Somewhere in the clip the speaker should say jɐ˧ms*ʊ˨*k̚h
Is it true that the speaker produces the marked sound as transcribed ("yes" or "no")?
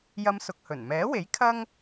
yes